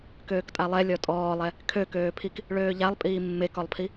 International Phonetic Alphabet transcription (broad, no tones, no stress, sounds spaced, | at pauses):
k øː k tʼ a lˠ ɛ lʲ ɔ tʼ ɔː lˠ ɛ | kʰ ø k øː pʰ i k | ɭ øː ʎ a lˠ pʼ iː mː e k ɔ lˠ pʰ i